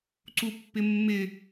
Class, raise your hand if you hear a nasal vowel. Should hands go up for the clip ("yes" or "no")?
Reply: no